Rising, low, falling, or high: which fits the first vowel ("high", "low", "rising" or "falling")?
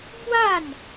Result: falling